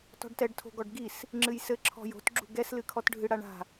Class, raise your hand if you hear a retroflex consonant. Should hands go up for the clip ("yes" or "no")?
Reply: yes